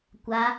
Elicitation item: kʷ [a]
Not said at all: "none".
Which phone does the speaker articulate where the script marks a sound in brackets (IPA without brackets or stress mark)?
a